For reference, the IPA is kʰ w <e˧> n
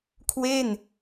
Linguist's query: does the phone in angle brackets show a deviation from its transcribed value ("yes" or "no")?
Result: yes